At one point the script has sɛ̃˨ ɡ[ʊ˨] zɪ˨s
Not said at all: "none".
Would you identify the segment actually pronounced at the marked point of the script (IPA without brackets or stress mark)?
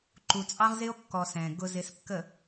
ʊ˨